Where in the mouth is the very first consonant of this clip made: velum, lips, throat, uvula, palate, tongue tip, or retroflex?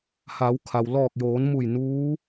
throat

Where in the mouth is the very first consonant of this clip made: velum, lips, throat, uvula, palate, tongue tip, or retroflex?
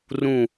tongue tip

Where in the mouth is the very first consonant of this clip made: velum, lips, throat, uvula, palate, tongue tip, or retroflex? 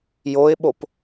palate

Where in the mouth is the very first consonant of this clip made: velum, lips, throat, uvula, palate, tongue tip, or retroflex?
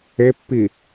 lips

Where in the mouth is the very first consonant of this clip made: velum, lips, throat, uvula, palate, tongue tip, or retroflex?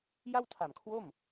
palate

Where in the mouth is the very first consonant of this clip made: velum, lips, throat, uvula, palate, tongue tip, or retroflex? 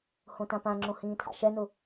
throat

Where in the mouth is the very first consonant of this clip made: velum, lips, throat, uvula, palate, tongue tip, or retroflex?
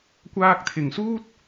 velum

